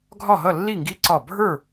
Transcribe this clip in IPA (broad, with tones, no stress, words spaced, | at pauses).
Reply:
ɡʱɒ˧˩ɦʌ˧˩lːi˧˩ŋɡi˨˥ ǀɒ˧˩bʱə˞˥˨